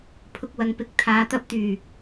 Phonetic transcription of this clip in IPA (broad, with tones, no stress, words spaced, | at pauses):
pʰʊ˧k̚wɐ˧ŋpɪ˧k̚ t̪ʰaː˨˧ t̪ɐ˧p̚t̪yː˨˩